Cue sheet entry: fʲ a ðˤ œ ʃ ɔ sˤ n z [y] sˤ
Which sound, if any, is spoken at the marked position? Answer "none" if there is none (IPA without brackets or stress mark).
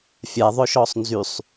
y